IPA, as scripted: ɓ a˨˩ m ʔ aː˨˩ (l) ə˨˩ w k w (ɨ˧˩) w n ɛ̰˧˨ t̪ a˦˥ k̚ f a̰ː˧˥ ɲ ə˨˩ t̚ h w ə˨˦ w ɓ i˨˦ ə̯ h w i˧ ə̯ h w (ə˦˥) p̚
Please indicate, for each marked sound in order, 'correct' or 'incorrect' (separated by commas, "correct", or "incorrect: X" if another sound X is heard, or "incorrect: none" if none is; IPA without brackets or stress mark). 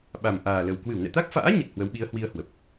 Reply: correct, correct, incorrect: ə˨˩